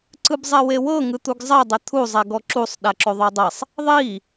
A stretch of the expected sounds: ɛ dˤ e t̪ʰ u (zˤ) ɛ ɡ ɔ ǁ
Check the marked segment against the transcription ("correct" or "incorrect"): correct